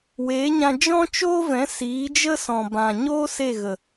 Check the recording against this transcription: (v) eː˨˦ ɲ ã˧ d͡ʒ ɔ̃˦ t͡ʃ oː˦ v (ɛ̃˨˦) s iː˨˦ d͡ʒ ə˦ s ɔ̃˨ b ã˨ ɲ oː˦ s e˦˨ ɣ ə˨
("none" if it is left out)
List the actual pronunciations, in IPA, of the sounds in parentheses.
w, ɛ̃˨˦

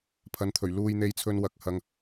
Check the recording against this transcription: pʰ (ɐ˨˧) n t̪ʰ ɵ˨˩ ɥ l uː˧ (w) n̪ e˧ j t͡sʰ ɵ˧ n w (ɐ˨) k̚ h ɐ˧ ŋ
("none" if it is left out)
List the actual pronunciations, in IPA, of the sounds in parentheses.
ɐ˨˧, j, ɐ˨˥

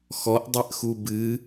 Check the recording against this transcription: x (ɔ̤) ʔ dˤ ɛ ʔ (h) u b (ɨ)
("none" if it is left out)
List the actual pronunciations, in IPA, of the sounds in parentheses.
ɔ, x, ɨ

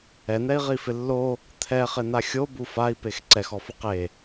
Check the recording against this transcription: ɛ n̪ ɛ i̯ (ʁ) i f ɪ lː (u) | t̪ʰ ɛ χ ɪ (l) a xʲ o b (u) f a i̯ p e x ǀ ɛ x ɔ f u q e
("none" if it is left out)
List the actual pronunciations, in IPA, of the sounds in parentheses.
ʁ, o, n̪, u

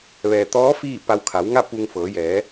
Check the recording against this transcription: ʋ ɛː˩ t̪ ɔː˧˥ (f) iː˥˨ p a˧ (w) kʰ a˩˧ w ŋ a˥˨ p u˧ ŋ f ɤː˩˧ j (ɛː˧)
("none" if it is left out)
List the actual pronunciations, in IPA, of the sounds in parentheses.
f, w, ɛː˩˧

